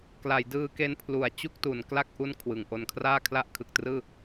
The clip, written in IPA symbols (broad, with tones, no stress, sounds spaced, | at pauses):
k l a˩˦ j d ɯː˧ k e˧ n pʰ l u˩˦ a̯ t͡ɕ u˥˩ k̚ t u˩˦ n k l a˥˩ k̚ ʔ u˥˩ n kʰ w ɯ˩˦ ŋ ʔ o˧ n kʰ r aː˥˩ kʰ l a˥˩ ʔ kʰ ɯ˨˩ k̚ t r ɯː˥˩